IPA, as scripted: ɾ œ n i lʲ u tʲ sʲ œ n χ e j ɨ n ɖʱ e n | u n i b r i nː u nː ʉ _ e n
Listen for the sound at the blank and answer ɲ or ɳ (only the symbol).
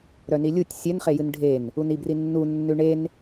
ɳ